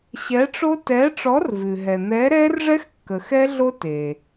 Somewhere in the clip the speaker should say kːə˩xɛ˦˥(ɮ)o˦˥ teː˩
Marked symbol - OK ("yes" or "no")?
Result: yes